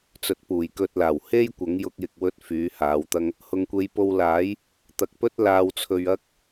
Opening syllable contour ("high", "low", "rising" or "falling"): low